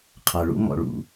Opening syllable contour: low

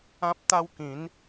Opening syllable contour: high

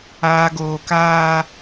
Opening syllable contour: low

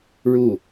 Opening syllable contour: falling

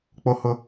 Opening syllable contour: high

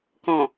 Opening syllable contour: low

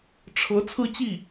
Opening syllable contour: rising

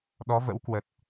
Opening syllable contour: rising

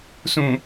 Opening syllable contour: low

